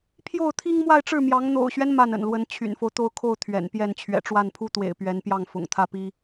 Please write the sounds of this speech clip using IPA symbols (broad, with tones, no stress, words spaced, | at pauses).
pʰjo˥˩ʊ̯t̪ʰi˥ŋ mwa˥˧ɪ̯ʈ͡ʂɻ̩˥˩mjɑ˧˥ŋ n̪o̰˨˩ʊ̯ɕɥɛ˦n ma˥˩nə̰˨˩nlwə˧˥n t͡ɕʰy̰˨˩nfo˦ʊ̯t̪o˥˧ʊ̯kʰo˥˩ʊ̯ t̪ʰɥɛ̰˨˩npjɛ˥˩n t͡ɕʰɥɛ̰˨˩ʈ͡ʂwa˥˩npʰu˥t̪wḛ˨˩ɪ̯ pɥɛ˧˥npjɑ˥˩ŋ fʊ̰˨˩ŋt̪ʰä˥˩pi˥